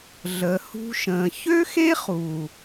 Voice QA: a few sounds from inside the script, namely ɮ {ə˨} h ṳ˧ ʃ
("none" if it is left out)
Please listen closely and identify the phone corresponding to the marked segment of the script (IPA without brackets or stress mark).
ə˨